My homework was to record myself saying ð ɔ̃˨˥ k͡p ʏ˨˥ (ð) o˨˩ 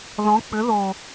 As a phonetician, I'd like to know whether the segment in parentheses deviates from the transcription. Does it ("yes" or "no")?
no